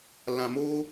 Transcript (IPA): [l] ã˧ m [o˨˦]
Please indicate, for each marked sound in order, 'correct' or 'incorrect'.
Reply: correct, incorrect

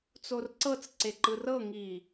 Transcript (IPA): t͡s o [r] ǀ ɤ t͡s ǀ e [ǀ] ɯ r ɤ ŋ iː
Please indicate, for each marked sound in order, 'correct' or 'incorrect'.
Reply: correct, incorrect

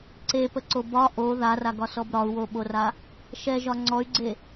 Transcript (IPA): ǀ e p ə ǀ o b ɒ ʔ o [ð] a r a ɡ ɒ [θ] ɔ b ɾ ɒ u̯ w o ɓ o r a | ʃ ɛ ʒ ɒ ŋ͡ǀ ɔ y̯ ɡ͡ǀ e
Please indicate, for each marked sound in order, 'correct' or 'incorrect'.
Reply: correct, incorrect

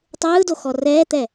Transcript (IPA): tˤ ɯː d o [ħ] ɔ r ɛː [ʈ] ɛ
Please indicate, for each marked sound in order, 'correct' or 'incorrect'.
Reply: incorrect, incorrect

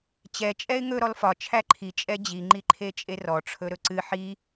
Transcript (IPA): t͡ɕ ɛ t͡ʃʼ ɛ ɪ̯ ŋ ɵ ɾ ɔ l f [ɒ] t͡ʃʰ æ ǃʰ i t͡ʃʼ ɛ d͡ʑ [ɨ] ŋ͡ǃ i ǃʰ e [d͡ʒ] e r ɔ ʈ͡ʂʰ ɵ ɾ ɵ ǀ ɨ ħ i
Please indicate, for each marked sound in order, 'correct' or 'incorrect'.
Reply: correct, incorrect, incorrect

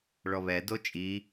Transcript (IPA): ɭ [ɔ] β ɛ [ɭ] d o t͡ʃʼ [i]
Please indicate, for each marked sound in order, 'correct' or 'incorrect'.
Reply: correct, incorrect, correct

